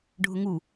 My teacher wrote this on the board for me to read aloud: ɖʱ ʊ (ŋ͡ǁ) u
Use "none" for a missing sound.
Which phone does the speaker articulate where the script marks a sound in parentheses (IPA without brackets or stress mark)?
ŋ